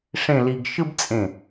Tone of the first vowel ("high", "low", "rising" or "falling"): falling